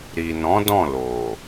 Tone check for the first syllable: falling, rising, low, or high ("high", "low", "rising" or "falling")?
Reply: low